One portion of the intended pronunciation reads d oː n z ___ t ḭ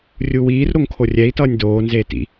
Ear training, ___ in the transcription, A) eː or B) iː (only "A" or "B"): A